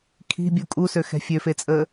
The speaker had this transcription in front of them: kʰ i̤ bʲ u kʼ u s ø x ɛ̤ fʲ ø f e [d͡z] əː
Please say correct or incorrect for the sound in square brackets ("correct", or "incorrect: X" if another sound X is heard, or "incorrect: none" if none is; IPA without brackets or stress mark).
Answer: incorrect: t͡sʼ